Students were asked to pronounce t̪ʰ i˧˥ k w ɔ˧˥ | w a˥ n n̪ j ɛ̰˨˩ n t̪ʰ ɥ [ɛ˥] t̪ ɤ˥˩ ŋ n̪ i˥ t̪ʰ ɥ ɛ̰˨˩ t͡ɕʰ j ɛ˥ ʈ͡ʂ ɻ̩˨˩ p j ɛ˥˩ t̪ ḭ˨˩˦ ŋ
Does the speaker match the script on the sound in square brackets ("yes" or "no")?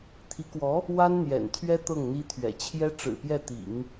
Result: yes